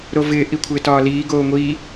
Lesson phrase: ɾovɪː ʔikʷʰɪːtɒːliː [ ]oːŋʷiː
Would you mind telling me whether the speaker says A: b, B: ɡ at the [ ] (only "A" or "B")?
B